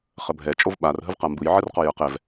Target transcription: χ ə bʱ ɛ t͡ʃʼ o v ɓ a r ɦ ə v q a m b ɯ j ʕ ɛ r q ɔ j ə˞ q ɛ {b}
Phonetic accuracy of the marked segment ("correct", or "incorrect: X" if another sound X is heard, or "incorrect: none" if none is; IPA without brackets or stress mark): incorrect: v